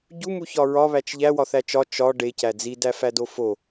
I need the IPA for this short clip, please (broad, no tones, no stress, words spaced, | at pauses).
ɟumuçɒ ɹɒβæt͡ʃ ʎæwɒθæ t͡ʃɒ t͡ʃɒ ɖecæ d͡zidæfædo fo